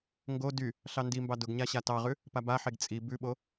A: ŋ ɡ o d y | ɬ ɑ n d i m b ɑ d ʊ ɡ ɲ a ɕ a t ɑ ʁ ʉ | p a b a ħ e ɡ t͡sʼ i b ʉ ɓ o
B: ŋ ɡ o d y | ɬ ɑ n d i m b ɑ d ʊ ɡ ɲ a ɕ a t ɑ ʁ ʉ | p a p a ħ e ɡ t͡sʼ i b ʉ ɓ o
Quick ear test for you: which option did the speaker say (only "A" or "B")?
A